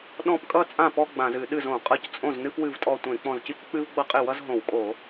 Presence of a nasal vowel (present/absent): present